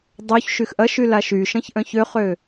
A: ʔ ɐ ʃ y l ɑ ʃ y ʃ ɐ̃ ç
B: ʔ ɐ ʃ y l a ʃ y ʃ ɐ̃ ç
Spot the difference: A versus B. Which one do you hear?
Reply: B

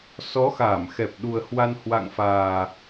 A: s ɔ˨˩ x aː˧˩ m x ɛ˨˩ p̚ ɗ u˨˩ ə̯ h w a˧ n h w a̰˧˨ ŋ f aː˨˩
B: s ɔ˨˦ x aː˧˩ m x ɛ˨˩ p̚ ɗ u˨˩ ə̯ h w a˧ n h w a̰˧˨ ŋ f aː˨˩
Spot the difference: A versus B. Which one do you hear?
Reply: B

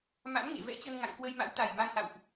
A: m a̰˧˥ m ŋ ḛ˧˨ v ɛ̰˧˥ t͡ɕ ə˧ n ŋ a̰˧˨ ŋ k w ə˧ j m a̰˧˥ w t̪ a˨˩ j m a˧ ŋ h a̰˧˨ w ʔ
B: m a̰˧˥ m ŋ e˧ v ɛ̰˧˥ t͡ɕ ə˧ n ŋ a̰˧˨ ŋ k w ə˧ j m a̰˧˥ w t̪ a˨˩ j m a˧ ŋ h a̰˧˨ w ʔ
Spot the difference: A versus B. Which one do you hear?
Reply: A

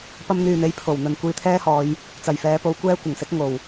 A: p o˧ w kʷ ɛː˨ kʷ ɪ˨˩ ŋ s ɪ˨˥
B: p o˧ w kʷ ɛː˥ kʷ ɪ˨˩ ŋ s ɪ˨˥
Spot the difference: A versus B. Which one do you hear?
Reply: B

